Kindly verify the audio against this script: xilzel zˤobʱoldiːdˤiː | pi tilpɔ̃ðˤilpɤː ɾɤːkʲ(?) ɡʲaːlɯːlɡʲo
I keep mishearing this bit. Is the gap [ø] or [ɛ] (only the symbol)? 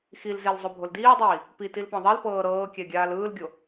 ɛ